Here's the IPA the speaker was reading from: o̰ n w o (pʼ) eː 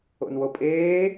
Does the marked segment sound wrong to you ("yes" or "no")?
no